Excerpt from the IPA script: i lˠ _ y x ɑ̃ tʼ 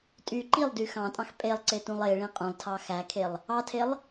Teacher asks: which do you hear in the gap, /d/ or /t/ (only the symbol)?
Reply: d